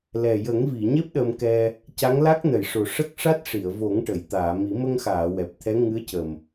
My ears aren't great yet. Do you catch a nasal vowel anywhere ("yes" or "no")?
no